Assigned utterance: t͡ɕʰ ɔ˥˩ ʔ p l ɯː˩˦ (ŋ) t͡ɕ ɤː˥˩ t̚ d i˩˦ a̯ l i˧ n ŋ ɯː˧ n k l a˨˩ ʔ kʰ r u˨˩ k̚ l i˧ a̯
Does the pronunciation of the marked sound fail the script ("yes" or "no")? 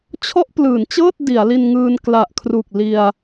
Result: yes